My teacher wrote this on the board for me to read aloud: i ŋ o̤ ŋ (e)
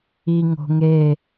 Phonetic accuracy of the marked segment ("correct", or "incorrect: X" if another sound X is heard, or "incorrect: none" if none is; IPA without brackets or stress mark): correct